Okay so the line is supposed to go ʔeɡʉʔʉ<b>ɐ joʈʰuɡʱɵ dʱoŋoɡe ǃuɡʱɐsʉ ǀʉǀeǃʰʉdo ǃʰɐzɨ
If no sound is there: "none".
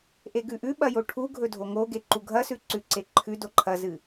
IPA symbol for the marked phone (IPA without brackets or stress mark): ɓ